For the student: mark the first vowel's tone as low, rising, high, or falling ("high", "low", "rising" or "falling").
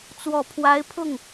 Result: low